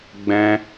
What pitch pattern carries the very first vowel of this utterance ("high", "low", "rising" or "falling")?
high